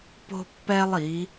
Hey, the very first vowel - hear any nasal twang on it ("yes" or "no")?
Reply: no